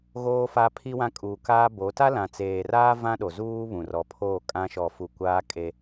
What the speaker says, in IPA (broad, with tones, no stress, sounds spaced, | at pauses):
ɣ oː˦ f a˦ pʰ i˦ w ã˦ kʼ uː˨ k aː˦ b o˨˦ t a˦ l ã˨ t͡s eː˨ r aː˦ v ã˦ ɗ o˨ z uː˦ β ũ˨ r ɔ˨ pʰ oː˦˨ kʼ ã˦ ʃ ɔ˨ f u˨ kʷ aː˦ kʼ e˦